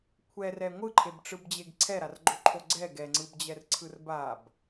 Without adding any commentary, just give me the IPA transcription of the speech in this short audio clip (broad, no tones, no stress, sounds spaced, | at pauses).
kʷʰ ɛ r ɛ ŋʷ ɯ ǃʰ e b ʈ͡ʂ ɯ b d͡ʑ e ɡ ǀʰ ɛ ɾ a r ɡ͡ǃ o ǃʰ o ɡ͡ǀ ɛ ɡ ɛ ŋ͡ǀ ɯ b d͡ʑ ɛ r ǀʰ ɯ r b a b